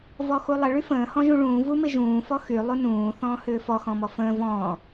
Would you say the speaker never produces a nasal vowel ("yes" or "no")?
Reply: no